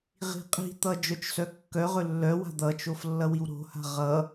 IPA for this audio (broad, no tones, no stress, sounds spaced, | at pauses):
ʁ i̤ qʼ i̤ t̪ ʌ d͡ʒ œ t͡ʃ s œ kː œ ʁ ɵ lː œ w a̤ d̪ ʌ t͡ʃ o f lː ʌ w i w ɾ o̤ h a̤ ʁ ʌ